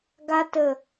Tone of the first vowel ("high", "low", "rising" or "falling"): high